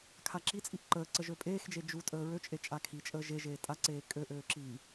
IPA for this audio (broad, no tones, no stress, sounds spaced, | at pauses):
kʰ a ǁ i t͡sʼ i ʔ ǃ əː ǀ ə ʒ ø pʼ eː x d͡ʒ e d͡ʒ u tʼ əː ɹ ø t͡ʃʼ e t͡ʃʼ a kʰ i t͡ʃʼ əː ʒ e ʒ eː tʼ a ǀ eː kʼ ø ʔ øː ǁ i